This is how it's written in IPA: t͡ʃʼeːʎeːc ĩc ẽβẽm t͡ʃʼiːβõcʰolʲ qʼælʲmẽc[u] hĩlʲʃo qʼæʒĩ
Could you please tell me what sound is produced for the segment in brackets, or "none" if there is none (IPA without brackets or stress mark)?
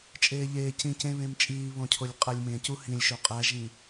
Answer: u